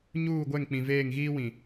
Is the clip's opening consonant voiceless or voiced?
voiced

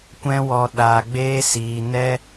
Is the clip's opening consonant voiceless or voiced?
voiceless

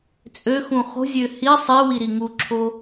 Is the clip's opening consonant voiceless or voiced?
voiceless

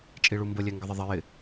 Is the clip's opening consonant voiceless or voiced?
voiceless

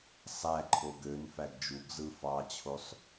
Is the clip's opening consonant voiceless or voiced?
voiceless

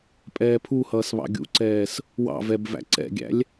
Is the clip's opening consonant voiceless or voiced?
voiceless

